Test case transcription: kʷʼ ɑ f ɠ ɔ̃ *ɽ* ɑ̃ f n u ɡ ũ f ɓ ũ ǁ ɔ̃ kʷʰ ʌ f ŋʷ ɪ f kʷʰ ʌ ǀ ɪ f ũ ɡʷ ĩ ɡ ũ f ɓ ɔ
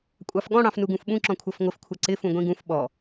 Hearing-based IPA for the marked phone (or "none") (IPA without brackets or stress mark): ɽ